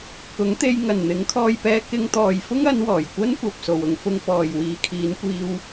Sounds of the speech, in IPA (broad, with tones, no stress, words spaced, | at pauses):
kʊ˨˥ŋt̪e˧j ŋɐ˨˩n n̪ɪ˨˥ŋkʰɔː˧jpɛː˧ kɪ˧ŋt̪ɔː˨j fʊ˥ŋɐ˨˧n wɔː˨˩jkʷɐ˥nkʷɐ˨p̚ so˨wʊ˨˧ŋfʊ˧ŋ pɔː˨jwiː˨˧kʰiː˨˧nkʷiː˧w